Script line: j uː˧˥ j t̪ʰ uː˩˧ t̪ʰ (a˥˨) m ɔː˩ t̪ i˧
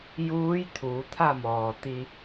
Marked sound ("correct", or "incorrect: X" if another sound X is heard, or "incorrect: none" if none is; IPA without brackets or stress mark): correct